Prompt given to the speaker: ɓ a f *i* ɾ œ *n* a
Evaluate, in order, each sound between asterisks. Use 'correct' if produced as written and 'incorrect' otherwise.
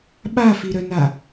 correct, correct

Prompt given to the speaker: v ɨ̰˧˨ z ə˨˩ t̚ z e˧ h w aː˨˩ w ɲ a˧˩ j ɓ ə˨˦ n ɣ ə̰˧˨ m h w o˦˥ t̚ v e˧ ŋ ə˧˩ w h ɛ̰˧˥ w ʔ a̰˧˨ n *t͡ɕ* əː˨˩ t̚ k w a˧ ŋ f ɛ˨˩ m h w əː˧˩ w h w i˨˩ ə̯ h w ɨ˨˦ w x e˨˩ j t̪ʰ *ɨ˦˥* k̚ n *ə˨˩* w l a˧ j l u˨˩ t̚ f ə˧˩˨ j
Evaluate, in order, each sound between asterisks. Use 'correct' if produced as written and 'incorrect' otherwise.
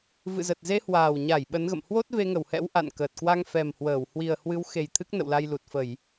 incorrect: k, correct, incorrect: ə̰˧˨

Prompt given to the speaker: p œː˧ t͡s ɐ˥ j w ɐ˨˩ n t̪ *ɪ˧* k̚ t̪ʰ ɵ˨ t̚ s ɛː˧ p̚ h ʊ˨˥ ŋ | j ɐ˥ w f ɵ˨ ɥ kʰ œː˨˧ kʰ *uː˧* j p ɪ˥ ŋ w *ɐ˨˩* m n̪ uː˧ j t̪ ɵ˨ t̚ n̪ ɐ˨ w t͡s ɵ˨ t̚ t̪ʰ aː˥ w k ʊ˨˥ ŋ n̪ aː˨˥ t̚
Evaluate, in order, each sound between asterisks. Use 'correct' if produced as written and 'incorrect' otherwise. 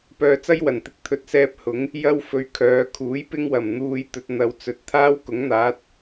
correct, incorrect: uː˨˥, correct

